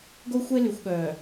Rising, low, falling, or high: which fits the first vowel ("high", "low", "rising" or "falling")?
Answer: high